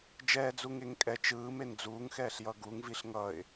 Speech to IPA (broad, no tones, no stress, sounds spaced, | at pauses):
d͡ʒ ɛː d͡z u ŋ e ŋ kʼ ɛ t͡ʃ ɯː m e n d͡z uː ŋ x ɛː ɬ j ʌ ɡ u ŋ v i ɬ ŋ ʌ ɪ̯